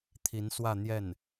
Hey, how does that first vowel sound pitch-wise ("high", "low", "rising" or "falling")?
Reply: rising